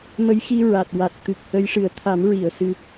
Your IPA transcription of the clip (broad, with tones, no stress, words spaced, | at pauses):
mə˧˥jxi˧ ɹa˨˩t̚ wa˨˩t̚t̪ɨ˨˩k̚ hə˧˥jʂɨ˨˩˦ə̯ t̪ʰa˨˩˦m ɹi˨˩˨ə̯ sɨ˧